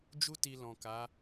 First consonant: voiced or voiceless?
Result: voiced